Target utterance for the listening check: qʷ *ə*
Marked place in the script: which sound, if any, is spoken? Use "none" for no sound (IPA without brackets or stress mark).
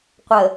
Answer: ə